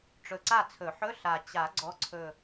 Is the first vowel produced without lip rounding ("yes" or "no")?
no